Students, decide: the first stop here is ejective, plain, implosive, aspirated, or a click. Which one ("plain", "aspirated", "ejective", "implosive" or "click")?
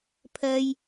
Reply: aspirated